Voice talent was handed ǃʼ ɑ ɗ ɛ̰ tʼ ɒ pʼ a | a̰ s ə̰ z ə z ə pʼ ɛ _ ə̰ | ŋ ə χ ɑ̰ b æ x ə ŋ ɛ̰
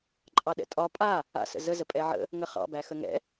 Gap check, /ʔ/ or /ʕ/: ʕ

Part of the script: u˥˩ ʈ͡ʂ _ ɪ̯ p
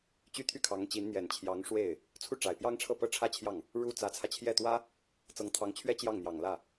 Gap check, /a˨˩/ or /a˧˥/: a˨˩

